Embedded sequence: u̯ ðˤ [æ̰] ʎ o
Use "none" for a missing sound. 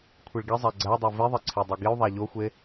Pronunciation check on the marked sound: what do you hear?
æ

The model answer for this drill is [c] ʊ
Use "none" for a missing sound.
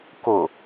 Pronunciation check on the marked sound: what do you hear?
k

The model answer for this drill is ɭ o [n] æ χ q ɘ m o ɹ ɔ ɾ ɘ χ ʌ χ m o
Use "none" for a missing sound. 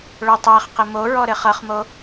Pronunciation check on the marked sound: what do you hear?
tˤ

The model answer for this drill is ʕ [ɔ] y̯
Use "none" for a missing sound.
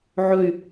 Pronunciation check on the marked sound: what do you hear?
ɵ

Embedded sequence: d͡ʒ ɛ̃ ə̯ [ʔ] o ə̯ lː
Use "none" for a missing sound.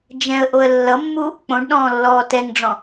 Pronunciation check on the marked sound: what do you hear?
ʔ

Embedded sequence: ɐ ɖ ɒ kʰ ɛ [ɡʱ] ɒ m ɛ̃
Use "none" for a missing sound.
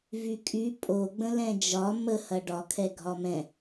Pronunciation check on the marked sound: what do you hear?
ɡʱ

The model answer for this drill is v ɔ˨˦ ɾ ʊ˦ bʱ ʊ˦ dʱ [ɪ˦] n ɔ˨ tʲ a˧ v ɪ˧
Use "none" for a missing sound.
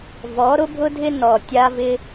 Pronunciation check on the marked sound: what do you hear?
ɪ˦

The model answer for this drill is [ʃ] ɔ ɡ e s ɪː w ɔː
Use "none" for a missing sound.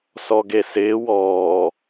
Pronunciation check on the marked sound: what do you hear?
s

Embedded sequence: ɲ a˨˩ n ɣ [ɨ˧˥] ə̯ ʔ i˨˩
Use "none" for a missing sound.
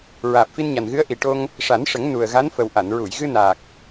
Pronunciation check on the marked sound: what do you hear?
ɨ˧˥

